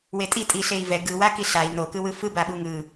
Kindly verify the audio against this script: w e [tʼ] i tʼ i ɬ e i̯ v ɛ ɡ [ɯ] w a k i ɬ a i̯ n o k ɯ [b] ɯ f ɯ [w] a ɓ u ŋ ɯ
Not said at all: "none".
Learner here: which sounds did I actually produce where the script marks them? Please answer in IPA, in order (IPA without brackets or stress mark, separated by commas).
tʼ, ɯ, w, b